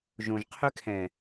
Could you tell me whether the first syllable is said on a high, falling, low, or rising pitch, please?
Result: low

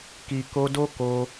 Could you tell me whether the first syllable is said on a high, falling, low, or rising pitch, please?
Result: low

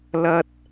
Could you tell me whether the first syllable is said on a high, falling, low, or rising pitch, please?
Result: high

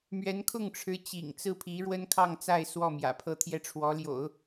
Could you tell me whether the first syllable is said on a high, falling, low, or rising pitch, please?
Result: rising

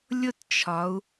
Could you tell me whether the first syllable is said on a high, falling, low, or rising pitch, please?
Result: falling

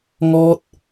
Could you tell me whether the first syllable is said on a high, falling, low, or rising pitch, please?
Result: high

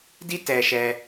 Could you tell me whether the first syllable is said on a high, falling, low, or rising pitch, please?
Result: high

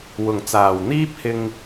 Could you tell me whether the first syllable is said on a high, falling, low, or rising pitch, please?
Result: low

